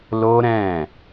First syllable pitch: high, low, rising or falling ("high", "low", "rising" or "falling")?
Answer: high